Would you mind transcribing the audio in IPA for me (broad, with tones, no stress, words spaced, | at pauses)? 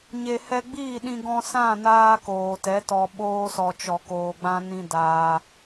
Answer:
ɲe˨hɛ˧ɡ͡biː˦˨ɗĩ˧ ɡɔ̃˧sã˦˨naː˧ koː˨tɛ˨˦tɔ˧ ɓoː˧sɔ˨t͡ʃɔ˨ koː˨ɡ͡bã˧ nĩ˧ daː˧